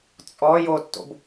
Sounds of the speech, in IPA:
t͡sʼ ɔ j o tː o̰ b

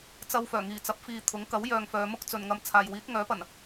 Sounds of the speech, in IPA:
t͡s ɐ˧ w f œː˨˩ ŋ iː˨˩ t͡s ɐ˨˥ p̚ f iː˨ t̪ʰ ʊ˨˥ ŋ k ɐ˨˥ w j œː˧ ŋ f œː˨˧ m ʊ˥ k̚ t͡s ɵ˨ n ŋ ɐ˧ m t͡sʰ aː˨ j w iː˨˥ t̚ ŋ œː˨˥ p ɐ˨˩ n

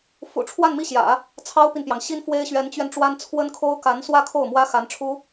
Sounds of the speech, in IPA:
f ṵ˨˩ ʈ͡ʂʰ w a˥˧ n m i˥˩ ɕ j ä̰˨˩˦ | t͡sʰ ɑ˥ ʊ̯ p i˨ n p j ɑ˩ ŋ ɕ i˥ n f w e˥ ɪ̯ ɕ ɥ ɛ˧˥ n t͡ɕ ɥ ɛ˧ n ʈ͡ʂ w a˥ n t͡sʰ w ə˥ n kʰ o˥ ʊ̯ k a˧˥ n s w ä˥˧ kʰ o˥˩ ʊ̯ m w ä˥ x a˧˥ n ʈ͡ʂʰ u˥

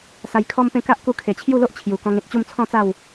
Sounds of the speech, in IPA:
s a˧ j kʰ ɔ˦ m p ẽ˥˧ k a˦ ʔ k u˧ kʰ e˨˩ t͡ɕʰ j u˥˧ l o˦ ʔ t͡ɕʰ j u˨˩ k ɔ̃˧ ŋ ẽ˨ t̚ t͡ɕ u˥˧ m t͡sʰ ɔ̃˥˧ t͡s a˥˧ w

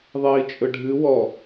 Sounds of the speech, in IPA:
ðˤ iː t͡ʃʼ ɵ ɖʱ ɨ w ɔ

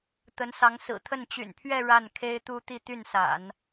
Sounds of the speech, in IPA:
t̪ ə˧˥ n s ɑ˧˥ ŋ s ɹ̩˨˩ t̪ʰ ə˥˩ n t͡ɕ y̰˨˩ n pʰ ɥ ɛ˥˧ ɻ a˥˩ n kʰ e˥ ɪ̯ t̪ u˥ t̪ i˥˧ t̪ y˥˩ n s a̰˨˩˦ n

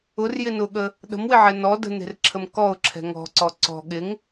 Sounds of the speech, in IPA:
ʊ r j ɪ n ʊ ɠ ə | ɗ ə̤ m w ɪ ʕ ɛ n ɔ d ə̤ n e̤ r ǁʰ ə m k ɔ ʊ̯ ǁʰ ɛ̤ ŋ ɔ̤ ǀ ɔ ǀ ɔ̤ ɠ ɪ ŋ

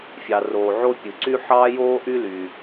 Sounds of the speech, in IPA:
fʲ ɑ˩ r oː˩ ʕ o˥ pʲ ɯ˩ ǀ y˥ ħ ɑː˥ j oː˥ ʔ y˥ l yː˩

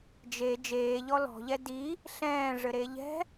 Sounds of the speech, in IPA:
d͡ʒ e d͡ʒ eː ʎ ɔ l ɔ̤ ʎ ɛ d i | ɬ ɛ̃ː ʐ ɘ ɾ e ʎ ɛ̤

